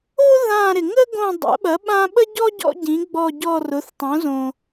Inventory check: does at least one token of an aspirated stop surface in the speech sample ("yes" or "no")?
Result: no